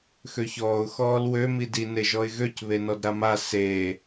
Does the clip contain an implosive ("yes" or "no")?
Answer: no